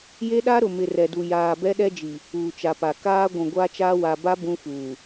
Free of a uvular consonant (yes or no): yes